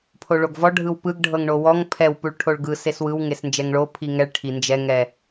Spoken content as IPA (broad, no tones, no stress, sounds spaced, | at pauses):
pʰ o ɭ o ɡ v ɔ ɖʱ ɯ w p ɯ ɡ ɖʱ ɤ ŋ ɳ o w ɔ ŋ pʰ ɛ w p u ɭ ʈʰ o ɭ ɡ ɯ s e s w ɯ w ŋ e s n d͡ʒ ɛ ŋ ɭ o pʰ i ŋ ɛ ɭ ʈʰ i n d͡ʒ ɛ ŋ ɛ